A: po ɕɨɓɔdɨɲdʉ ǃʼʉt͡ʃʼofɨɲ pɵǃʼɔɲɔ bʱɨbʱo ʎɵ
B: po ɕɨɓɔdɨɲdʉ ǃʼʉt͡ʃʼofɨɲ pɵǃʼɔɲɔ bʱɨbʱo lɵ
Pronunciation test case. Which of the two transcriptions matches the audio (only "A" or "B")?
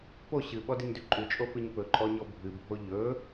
A